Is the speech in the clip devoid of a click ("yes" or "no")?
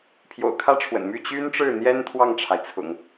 yes